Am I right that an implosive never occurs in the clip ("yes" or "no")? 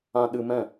no